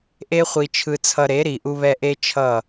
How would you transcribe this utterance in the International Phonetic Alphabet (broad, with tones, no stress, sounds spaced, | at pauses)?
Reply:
ʔ e˦ χʷ i˧ t͡ʃʰ ɯ˧ t͡sʰ ʌ˧ ɾ e˨˦ ɾ i˨ ʔ u˧ β ɛ˧ ʔ e˦ t͡ʃʰ ʌ˦˨